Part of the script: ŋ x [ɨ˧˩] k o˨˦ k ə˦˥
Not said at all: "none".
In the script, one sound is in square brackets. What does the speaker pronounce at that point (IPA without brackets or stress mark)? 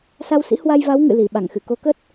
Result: ɨ˧˩